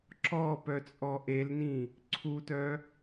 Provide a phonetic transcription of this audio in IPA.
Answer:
ǁɔ pœt͡sʼɔʔelnĩ | ǀʰutœ

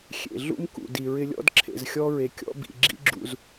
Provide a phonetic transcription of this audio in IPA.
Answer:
xʲḛ˩ɮṵ˥mkṵ˩ di˩ɹɪ˧lʲɔ̰˥d ǁʰḛ˩zxʲɔ˧ɹe˩ kʲɔ̰˧bḭ˩ ɡ͡ǁḭ˧ɡ͡ǁṵ˩z

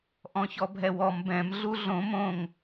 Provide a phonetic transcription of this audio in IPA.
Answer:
ʔɔ̃çɔbʱɛwɔm bɛ̃m ɮuɮõ mõŋ

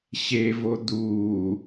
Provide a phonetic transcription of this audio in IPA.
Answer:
ɕevo d̪uː

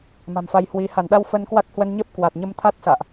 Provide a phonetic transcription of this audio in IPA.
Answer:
ma̤˨˩mfa˧jhwi˨˦ ha˧˩nɗa˧w fə˧nkwa˦˥k̚hwə˧n ɲə˦˥p̚ kwa˨˩t̚ɲə˧mt̪ʰa˦˥t̚ sa̰ː˧˨ʔ

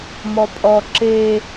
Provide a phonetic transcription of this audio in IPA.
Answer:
mɔpʼɔ ǁe

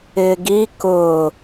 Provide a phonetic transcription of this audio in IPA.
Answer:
ɪːɡi kʊ

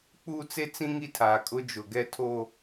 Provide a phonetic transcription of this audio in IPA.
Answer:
k͡puː˦t͡se˦t͡sĩ˦ ŋi˦tʰaː˨kʼʊ˦ d͡ʒʊ˨ ɡɛ˦tʰoː˦

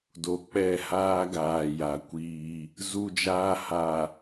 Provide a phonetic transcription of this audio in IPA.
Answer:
do˨k͡pɛ˦˨haː˦ɡaː˨ ja˨kʷiː˦ | zu˦d͡ʒaː˦ ha˨

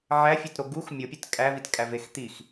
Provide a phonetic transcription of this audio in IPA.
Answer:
ʕæfʲetɾo ɡux mʲopʲet kʼævitkʼævex t̪ix

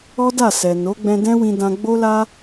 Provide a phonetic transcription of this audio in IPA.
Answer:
ɔ˦da˦˨sɛ˨no˨˦ ɡ͡bɛ̃˧dɛ̃˦wĩ˧ dã˧ɡ͡bo˦la˦

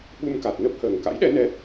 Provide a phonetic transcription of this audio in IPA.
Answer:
ɓu˧mka˨˩t̚nə˦˥p̚həː˨˩ŋ ka̰˧˥jɗɛ˨˦ nɛ˨˦

